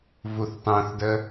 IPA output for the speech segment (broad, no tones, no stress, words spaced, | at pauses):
vuθtˤũθdə